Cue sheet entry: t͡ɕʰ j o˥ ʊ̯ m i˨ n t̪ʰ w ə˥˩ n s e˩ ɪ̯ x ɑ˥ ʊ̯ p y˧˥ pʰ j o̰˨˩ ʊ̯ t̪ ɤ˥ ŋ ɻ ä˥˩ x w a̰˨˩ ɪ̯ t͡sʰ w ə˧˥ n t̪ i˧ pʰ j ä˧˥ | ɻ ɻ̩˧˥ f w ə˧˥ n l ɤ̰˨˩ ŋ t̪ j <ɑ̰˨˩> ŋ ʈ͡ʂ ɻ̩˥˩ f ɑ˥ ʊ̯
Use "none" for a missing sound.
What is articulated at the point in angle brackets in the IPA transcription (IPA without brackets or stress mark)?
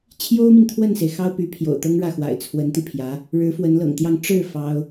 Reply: ɑ˥˧